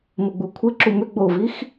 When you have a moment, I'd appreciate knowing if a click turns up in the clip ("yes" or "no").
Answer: yes